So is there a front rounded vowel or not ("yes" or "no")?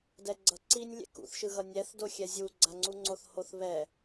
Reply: no